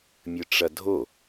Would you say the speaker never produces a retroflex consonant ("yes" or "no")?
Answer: no